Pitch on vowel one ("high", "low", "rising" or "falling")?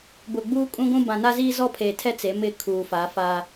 low